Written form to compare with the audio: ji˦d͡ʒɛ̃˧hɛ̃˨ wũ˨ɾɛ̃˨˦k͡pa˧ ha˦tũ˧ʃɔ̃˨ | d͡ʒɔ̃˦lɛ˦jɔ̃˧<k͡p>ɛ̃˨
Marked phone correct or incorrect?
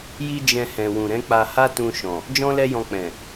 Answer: correct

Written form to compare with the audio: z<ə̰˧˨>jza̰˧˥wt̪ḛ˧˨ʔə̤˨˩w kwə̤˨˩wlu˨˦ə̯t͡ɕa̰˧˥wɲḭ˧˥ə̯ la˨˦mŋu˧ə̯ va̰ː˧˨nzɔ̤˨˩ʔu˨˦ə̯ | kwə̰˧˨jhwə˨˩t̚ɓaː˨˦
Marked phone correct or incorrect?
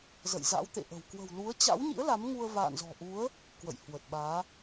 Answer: correct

